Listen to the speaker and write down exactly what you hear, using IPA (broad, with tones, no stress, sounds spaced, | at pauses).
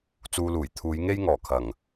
t͡s uː˧ l uː˨˩ j t̪ʰ uː˨˧ j ŋ e˥ j ŋ ɔː˨˩ kʰ ɐ˨˩ ŋ